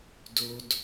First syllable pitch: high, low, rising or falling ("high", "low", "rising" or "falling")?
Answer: high